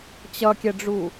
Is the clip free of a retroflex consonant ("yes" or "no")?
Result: no